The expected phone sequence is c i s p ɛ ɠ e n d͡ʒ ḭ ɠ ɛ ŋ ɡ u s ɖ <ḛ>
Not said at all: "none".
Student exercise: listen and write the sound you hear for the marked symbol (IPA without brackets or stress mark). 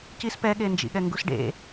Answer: ḛ